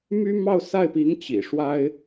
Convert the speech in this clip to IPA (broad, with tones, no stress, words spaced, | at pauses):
my˥ mɑ˥˧ʊ̯sa˥˩ɪ̯pi˧˥ŋ t͡ɕḭ˨˩ʂwa˥ɪ̯